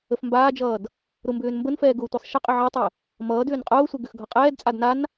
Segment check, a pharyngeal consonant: present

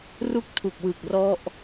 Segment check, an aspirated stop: present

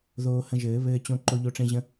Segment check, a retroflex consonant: present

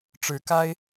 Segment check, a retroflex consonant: present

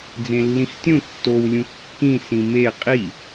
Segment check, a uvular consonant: present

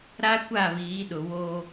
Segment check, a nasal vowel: absent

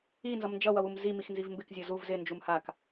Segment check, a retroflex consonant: absent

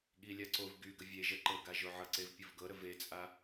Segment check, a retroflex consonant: absent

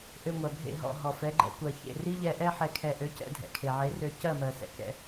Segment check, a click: present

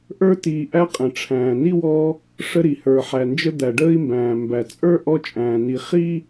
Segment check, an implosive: absent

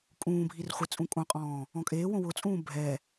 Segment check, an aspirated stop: absent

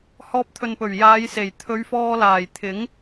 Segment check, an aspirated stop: present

